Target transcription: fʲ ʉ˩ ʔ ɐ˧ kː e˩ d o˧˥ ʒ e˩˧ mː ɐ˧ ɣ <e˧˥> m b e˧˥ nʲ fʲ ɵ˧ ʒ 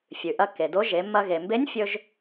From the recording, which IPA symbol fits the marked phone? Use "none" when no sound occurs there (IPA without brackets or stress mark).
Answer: e˩